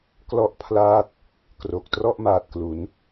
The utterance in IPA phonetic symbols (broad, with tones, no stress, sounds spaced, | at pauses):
k l ɔ˥˩ ʔ pʰ l aː˥˩ t̚ | k r o˨˩ k̚ t r ɔ˥˩ ʔ m aː˨˩ t̚ k l u˩˦ n